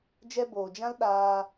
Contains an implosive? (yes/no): yes